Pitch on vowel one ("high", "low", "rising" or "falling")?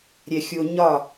low